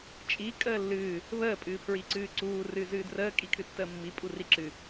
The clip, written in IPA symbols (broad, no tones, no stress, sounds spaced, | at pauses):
t͡ʃʼ i kʼ əː lː ɨː | β əː pʼ ɨː pʰ ɹ i ǀ ɨː ǀ uː r ɨ z ɨː d r əː kʼ i kʰ ɨ tː əː mː i pʼ u r i ǁ ɨ